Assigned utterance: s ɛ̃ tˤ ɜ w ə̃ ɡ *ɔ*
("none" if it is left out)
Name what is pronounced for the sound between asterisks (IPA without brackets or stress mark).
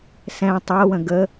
ə